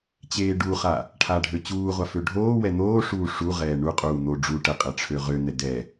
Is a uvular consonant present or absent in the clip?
present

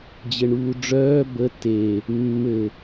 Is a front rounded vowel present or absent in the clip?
present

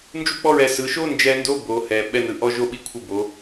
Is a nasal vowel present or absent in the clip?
absent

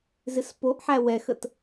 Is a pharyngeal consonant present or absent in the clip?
present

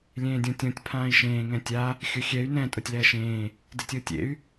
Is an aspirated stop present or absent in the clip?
present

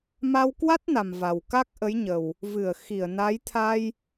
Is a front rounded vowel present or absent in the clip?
absent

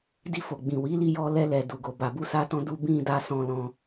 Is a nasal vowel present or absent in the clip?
present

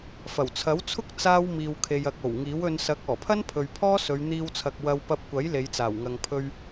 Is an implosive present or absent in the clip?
absent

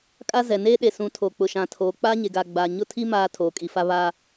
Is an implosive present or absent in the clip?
present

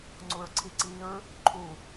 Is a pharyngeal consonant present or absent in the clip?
absent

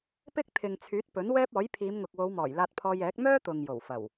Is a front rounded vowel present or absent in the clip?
present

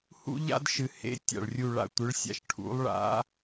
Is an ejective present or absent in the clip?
absent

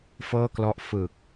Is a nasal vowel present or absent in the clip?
absent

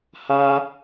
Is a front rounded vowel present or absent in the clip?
absent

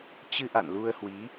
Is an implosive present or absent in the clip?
absent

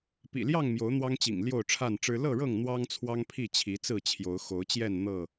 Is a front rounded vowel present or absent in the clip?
absent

